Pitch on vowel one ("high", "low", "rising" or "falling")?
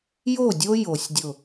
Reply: falling